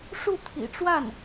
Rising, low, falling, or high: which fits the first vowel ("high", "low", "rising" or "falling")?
falling